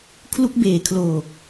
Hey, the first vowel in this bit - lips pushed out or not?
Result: yes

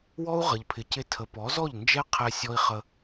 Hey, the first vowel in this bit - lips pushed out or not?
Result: yes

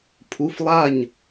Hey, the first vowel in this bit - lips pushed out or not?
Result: yes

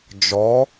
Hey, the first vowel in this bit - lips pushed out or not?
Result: yes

